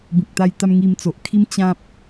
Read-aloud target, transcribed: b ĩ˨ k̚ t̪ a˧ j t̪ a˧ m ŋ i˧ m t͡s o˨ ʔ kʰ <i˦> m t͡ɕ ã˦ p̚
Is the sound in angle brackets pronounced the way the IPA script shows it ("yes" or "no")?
yes